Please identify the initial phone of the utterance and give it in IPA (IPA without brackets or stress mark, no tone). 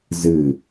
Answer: z